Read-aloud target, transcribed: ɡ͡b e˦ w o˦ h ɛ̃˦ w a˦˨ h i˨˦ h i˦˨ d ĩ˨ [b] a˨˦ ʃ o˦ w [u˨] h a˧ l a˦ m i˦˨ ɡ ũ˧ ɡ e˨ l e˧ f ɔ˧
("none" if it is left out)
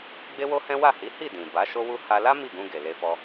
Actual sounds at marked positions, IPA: b, u˦

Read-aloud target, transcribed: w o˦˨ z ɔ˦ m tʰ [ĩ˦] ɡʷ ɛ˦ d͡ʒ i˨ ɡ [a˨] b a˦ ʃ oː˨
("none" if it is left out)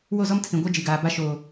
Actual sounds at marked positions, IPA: ĩ˨, aː˨

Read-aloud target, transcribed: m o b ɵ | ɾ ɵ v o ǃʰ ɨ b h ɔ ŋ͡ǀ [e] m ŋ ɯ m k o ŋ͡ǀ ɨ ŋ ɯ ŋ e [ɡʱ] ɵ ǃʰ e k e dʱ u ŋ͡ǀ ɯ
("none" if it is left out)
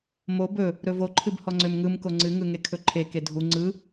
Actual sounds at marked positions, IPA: ø, kʰ

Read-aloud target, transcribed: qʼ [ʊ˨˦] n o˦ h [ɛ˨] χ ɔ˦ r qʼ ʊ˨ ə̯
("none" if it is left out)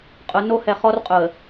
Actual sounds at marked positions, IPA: ʊ˨˦, ɛ˨

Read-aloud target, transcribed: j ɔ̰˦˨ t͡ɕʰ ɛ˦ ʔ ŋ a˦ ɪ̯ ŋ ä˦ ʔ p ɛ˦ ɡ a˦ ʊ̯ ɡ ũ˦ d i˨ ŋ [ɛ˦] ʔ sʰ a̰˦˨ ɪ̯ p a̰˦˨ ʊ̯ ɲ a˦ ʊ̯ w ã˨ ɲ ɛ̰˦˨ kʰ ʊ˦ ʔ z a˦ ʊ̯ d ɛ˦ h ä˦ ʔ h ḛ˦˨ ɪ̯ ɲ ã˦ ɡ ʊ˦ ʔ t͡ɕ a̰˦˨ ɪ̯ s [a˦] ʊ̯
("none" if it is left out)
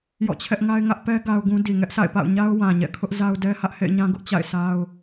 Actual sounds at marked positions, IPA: ɛ˦, a˦

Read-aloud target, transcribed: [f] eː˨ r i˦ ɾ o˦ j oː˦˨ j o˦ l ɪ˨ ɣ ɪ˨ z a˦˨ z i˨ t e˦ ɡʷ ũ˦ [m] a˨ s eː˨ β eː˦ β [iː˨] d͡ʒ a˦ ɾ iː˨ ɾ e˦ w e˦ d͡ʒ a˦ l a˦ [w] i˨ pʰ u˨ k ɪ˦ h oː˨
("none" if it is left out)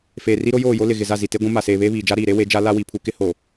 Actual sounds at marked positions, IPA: f, m, iː˨, w

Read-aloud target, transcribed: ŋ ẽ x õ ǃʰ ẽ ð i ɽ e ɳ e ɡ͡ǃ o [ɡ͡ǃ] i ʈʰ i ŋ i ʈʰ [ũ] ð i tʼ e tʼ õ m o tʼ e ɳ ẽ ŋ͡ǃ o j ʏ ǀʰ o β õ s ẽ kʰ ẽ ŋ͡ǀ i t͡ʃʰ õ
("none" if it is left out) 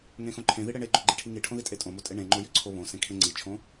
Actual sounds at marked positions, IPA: ɡ͡ǃ, õ

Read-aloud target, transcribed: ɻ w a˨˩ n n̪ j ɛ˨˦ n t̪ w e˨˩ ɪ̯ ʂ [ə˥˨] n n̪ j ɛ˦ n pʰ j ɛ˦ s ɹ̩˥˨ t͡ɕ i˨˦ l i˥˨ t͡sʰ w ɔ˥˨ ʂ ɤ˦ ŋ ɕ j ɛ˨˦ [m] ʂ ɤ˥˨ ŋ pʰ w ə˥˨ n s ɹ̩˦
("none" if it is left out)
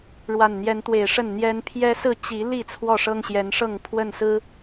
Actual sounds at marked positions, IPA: ə˥˨, n

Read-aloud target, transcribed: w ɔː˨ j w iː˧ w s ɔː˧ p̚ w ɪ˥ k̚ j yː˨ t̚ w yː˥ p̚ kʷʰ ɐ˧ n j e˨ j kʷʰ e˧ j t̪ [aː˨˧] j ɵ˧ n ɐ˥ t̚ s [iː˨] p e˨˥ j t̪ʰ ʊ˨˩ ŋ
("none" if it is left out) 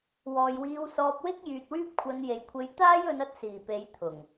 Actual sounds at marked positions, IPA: aː˥, iː˨˩

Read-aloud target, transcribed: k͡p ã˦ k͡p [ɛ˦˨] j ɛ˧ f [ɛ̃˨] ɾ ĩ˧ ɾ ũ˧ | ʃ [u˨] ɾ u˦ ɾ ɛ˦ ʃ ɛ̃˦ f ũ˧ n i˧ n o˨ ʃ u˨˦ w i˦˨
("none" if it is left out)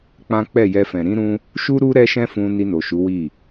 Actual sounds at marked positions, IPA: ɛ˦˨, ɛ̃˨, u˦

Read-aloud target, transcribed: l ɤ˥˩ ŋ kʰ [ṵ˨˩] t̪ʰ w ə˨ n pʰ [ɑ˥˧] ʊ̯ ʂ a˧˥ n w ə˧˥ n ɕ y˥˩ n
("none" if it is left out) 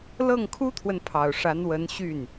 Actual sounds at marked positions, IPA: u˥, ɑ˨˩

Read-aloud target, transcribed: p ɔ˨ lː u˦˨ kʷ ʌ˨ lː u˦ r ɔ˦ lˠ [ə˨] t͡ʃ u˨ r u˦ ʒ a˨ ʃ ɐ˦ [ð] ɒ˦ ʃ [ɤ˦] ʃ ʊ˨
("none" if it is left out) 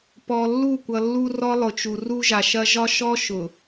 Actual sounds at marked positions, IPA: ʊ˨, ʒ, ɔ˦

